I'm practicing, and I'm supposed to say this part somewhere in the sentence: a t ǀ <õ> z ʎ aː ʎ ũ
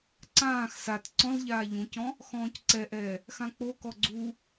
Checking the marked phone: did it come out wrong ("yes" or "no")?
yes